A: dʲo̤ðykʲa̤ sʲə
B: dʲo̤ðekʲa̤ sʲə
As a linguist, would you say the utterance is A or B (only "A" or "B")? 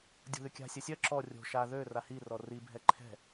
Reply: A